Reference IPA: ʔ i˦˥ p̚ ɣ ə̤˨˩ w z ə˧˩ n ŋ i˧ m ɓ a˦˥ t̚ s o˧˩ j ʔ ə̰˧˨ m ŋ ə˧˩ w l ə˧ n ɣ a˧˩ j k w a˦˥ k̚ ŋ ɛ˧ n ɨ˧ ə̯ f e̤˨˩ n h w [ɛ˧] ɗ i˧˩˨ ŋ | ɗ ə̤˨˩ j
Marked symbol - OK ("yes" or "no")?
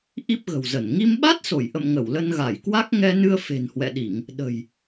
no